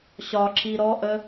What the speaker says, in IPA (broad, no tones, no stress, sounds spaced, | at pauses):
ɕ ɒ ǁʰ i ɾ ɔ ʔ ə